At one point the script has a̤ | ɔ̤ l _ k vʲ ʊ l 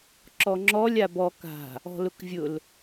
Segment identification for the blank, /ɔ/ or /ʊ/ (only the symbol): ʊ